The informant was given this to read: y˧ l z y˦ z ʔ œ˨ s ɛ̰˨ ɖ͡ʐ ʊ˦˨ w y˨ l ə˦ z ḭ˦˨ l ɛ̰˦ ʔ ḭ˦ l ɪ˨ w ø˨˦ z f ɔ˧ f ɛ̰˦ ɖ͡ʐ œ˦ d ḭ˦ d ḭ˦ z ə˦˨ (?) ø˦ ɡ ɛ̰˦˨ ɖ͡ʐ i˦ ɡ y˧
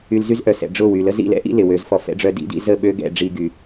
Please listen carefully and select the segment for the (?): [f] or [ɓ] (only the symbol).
ɓ